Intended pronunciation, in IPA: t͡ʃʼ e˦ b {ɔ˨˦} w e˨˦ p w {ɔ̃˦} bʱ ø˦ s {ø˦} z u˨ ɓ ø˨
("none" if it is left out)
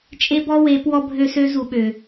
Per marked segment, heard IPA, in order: ɔ˦, ɔ˦, ø˦

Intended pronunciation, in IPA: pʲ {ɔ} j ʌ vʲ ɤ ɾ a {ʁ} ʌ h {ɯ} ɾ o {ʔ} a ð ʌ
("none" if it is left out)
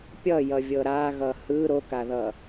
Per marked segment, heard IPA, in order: ʌ, ɣ, ɯ, k

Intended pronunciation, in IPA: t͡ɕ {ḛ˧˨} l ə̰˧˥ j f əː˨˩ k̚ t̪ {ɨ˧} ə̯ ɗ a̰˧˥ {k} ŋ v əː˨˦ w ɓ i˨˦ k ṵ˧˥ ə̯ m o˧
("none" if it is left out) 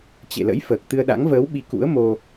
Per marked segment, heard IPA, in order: ḛ˧˨, ɨ˧, none

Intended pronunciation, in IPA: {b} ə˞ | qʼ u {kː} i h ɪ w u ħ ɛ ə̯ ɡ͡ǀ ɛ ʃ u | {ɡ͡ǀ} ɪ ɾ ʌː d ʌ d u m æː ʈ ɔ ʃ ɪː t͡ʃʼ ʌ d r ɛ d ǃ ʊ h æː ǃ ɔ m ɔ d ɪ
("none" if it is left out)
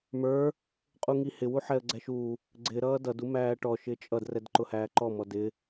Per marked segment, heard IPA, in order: m, ŋ, ɡ͡ǀ

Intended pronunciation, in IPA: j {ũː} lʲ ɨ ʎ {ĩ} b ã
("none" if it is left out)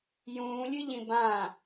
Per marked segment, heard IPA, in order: ũː, ĩ

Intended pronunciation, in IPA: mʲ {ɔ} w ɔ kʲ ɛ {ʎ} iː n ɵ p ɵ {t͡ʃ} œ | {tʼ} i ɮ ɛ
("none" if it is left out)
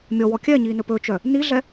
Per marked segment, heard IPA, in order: ɔ, ɲ, t͡ʃ, n

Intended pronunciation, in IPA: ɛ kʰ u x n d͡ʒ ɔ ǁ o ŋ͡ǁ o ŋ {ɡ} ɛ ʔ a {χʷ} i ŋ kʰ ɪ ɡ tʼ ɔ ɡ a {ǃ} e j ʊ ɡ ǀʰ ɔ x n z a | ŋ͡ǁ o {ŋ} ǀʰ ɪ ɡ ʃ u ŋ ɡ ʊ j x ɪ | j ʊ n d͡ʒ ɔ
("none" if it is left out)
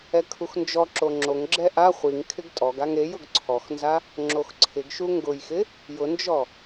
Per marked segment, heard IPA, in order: ɡ͡ǁ, χʷ, ŋ, x

